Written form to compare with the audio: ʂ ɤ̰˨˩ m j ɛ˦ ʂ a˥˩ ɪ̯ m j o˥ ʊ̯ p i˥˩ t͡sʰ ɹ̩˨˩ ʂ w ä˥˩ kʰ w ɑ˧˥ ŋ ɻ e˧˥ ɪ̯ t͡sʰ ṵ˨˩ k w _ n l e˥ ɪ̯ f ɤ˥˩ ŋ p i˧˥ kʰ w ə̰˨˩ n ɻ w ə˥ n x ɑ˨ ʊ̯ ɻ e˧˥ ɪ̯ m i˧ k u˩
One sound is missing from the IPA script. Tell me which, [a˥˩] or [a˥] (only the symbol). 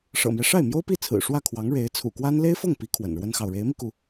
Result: a˥